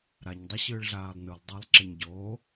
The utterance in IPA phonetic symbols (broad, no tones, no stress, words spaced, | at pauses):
ɾaɲdˤɯ ɕɯːɭɮaːlˠnɯlˠ dˤælˠǁeɲɟoː